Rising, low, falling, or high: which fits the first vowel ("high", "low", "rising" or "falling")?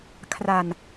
low